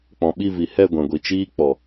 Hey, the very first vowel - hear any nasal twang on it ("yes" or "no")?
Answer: yes